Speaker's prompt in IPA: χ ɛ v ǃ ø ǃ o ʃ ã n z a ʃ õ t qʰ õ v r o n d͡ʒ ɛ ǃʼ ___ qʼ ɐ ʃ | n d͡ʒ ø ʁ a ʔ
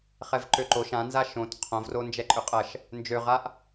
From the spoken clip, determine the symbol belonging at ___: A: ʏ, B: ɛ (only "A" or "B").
A